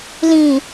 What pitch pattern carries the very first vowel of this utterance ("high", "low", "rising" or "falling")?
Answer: low